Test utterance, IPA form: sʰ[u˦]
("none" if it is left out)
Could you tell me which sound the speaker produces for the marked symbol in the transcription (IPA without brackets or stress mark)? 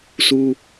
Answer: u˦